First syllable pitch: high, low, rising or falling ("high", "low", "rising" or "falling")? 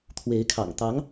rising